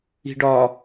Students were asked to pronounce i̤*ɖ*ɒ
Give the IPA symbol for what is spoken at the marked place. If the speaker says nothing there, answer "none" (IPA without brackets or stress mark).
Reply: ɖ